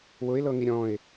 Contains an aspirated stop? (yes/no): no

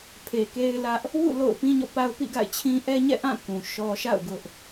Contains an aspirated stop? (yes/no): yes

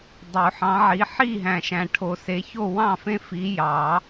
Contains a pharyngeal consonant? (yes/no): yes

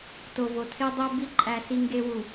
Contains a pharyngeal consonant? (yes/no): no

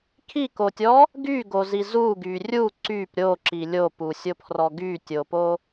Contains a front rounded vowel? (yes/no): yes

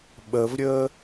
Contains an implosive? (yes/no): yes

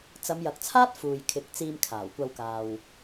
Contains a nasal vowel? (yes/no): no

